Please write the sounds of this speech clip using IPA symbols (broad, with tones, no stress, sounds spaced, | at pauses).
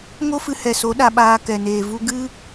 ŋ o˦ f ɨ˧ h ɛ˨ s o˨˦ ɗ a˧ ɓ aː˧ k ɛ˨ n eː˨ v u˦ ɡ ɨ˦